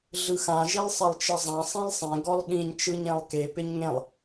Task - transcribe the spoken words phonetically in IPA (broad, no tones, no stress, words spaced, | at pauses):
ɮɯxã ʒilˠsˤɪlˠt͡ʃɘzˤã sˤĩlˠsˤẽ ɡɔlˠɠĩɲ t͡ʃɯɲẽlˠke pɪɲŋẽlˠ